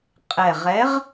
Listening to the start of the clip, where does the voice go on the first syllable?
low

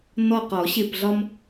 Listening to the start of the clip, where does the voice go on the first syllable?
falling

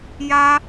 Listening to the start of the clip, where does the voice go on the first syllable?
high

